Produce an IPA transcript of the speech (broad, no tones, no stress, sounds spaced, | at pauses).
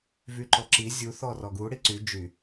v y ǃ ɔ ǁ i zʲ u θ ɔ r ɔ ɡ u ɽ i ǀ y d͡ʒ y